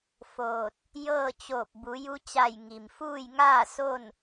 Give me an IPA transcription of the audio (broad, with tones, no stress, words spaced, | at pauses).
foː˧˩t̚ | jɤː˥˨ t͡ɕoː˧˩p̚bu˩˧ ju˧t͡ɕa˧˩j ŋi˩mfuː˥˨jŋaː˥˨ so˥˨n